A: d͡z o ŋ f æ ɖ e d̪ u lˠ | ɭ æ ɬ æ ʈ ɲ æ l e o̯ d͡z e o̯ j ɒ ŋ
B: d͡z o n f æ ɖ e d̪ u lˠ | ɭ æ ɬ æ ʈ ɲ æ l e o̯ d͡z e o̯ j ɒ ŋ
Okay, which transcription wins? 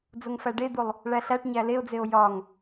A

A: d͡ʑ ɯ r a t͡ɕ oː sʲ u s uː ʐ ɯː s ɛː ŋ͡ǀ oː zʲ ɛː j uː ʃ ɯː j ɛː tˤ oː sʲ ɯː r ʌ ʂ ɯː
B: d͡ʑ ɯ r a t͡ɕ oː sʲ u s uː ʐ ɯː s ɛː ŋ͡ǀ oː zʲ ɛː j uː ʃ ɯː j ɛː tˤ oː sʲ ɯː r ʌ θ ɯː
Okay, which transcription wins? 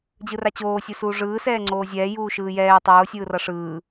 A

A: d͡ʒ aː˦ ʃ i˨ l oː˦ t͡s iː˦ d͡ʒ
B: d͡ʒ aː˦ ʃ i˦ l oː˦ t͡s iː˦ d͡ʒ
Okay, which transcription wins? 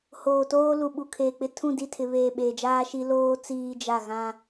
B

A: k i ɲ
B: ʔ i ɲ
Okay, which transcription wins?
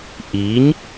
B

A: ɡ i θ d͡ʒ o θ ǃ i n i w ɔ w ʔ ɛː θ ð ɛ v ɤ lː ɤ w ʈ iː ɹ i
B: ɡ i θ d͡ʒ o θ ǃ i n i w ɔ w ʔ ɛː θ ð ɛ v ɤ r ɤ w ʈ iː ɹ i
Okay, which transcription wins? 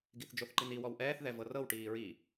B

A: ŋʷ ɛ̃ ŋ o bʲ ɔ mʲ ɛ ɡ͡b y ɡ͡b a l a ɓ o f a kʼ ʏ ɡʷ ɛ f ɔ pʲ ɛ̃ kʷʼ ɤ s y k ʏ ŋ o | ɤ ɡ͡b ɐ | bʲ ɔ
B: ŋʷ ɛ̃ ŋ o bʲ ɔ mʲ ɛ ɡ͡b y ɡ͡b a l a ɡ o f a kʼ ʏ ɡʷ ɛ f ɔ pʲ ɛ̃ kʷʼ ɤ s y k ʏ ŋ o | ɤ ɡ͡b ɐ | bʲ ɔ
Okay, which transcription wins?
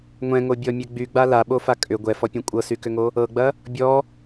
A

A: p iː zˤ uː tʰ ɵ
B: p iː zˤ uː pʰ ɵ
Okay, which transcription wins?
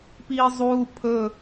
B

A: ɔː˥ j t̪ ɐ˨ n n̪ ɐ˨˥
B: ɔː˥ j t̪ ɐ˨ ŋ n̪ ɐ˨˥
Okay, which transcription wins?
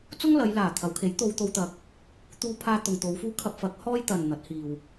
A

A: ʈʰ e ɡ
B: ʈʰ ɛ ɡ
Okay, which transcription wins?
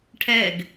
B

